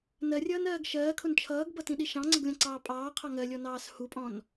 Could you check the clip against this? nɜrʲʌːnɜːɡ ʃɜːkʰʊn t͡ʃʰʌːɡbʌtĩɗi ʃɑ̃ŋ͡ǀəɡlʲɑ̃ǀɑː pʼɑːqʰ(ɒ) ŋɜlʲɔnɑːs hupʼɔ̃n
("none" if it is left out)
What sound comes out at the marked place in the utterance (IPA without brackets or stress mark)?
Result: ɑ